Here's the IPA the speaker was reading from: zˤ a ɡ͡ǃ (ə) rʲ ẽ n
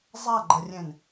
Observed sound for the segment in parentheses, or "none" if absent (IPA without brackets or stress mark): ə